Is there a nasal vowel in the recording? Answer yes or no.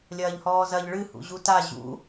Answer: no